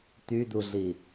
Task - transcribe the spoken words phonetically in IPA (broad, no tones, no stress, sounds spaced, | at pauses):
t̪ y d̪ u ɮ i